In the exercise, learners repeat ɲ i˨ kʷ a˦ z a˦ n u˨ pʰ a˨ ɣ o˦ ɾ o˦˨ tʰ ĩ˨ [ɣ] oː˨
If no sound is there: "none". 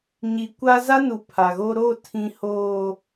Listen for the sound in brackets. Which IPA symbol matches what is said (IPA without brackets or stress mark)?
h